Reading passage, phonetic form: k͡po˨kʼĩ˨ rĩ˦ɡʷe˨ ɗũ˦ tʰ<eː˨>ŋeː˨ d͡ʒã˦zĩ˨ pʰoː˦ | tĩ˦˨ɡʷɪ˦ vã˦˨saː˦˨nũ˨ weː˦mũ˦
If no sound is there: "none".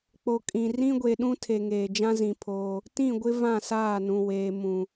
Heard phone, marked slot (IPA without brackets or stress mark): e˨